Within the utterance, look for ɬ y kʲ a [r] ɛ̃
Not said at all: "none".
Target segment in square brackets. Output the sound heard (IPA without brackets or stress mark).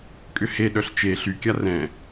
r